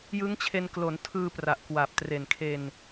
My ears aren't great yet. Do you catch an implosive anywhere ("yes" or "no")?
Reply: no